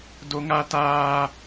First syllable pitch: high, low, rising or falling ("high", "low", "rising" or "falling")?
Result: high